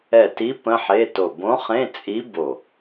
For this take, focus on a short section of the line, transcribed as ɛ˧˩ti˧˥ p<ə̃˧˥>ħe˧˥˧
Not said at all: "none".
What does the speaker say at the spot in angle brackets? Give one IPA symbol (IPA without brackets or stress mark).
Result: ə̃˧˥˧